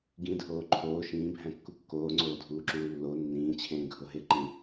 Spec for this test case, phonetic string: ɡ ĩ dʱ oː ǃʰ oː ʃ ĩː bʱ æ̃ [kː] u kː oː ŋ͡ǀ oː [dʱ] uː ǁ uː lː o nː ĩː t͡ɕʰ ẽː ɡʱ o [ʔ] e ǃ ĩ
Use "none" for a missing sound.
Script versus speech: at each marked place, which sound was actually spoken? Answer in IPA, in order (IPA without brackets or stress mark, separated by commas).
kː, dʱ, ɦ